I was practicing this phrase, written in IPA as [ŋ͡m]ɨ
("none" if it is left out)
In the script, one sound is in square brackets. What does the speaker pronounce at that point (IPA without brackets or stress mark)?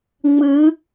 ŋ͡m